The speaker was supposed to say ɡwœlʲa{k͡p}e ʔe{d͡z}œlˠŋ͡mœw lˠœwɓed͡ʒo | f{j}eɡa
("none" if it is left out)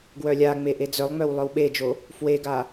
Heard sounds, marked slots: ŋ͡m, d͡z, w

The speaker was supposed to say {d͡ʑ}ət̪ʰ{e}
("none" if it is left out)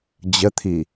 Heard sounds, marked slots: d͡ʑ, i

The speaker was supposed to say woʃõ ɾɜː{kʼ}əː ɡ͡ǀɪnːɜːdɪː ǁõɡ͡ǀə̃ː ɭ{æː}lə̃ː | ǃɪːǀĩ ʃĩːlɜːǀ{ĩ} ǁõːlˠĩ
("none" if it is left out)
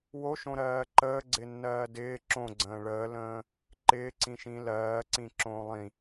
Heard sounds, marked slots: ǃ, əː, ĩ

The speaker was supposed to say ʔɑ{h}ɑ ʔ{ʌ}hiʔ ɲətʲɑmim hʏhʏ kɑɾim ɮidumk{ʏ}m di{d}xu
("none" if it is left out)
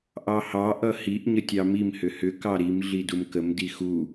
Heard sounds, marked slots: h, ʌ, ə, none

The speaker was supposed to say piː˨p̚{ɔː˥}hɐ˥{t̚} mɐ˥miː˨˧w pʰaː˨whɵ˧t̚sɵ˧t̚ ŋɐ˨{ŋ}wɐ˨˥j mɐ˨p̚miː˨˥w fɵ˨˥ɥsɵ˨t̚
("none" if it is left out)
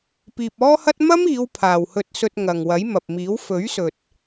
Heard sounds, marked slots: ɔː˥, t̚, ŋ

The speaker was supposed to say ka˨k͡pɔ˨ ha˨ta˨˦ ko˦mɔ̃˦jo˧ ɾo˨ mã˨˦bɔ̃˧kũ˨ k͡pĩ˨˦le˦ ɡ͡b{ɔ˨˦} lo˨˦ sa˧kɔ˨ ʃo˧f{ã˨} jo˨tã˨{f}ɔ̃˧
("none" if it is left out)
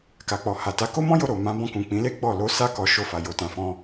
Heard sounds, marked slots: ɔ˦˨, a˨, f

